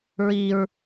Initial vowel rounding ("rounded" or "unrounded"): unrounded